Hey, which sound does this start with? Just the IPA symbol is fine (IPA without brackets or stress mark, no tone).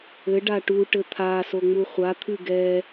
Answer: ɘ